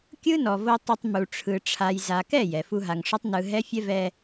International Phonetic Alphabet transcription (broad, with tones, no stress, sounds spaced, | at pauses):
kʲ ɯ˦ n ɔ˨ v o˧ tˤ ɛ˧ tˤ m u˨ ʈ͡ʂʰ ɯ˨ ʈ͡ʂʰ a˨ j z a˨ k ɛ˦˨ j ɛ˨ f u˧ ɦ a˨ ŋ ʂ ɔ˦ tˤ n ɯ˨ ɦ ɛ˦ fʲ ɛ˦ v ɛ˧